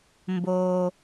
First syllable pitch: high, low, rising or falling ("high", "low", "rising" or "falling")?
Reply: low